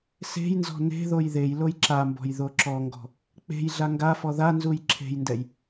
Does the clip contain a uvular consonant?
no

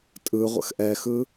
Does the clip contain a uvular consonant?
yes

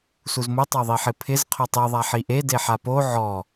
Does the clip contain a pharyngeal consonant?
yes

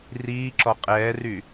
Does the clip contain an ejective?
yes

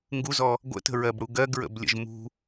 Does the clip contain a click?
no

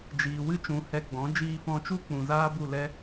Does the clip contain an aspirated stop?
no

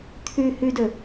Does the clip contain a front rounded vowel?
yes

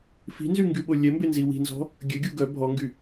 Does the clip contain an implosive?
yes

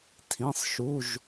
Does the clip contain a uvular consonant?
no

